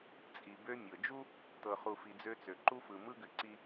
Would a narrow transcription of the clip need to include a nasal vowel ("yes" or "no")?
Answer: no